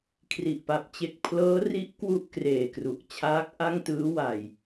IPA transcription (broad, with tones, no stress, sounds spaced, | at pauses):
kʰ r i˨˩ ʔ p a˨˩ p̚ t͡ɕ e˦˥ k̚ pʰ l ɤː˦˥ r i˦˥ ʔ k w u˥˩ ʔ k r eː˨˩ k r u˨˩ ʔ t͡ɕʰ aː˦˥ k̚ ʔ a˥˩ ŋ t ɯː˦˥ w a˨˩ j